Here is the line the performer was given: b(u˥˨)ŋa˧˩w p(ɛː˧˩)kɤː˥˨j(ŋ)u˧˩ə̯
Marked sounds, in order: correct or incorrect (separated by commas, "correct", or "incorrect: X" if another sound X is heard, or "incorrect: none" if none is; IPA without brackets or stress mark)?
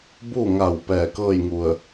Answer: correct, correct, correct